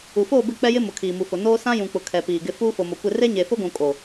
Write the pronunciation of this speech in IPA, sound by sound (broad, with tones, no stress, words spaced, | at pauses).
u˨foː˦˨bɪ˦˨ k͡pɛ˦jɪ˦ mʊ˨kʰiː˨mu˨fʊ˨ noː˦sã˦jũ˨k͡pʊ˨ kʰɛ˨piː˨ ɡɪ˦ fuː˦fo˨mo˨kʷɪ˦˨ re˦ɲe˨fʊ˦ɡʷũ˨ kʼo˨